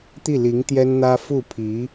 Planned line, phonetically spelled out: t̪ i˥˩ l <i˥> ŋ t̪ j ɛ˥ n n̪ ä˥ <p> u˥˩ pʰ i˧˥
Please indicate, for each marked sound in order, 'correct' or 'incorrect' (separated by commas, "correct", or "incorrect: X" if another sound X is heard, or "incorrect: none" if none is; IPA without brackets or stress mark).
incorrect: i˧˥, incorrect: f